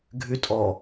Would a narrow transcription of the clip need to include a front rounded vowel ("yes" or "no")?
yes